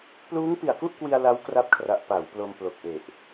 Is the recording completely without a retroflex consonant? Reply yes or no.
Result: yes